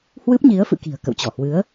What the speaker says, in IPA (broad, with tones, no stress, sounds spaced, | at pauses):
h w ɨ˦˥ p̚ ɲ i˨˦ ə̯ f ɨ̰˧˨ k i̤˨˩ ə̯ k ə̰˧˨ w t͡ɕ ɔ˧˩ h w ɨ˨˦ ə̯